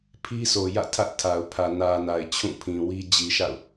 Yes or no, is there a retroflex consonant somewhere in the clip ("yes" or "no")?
no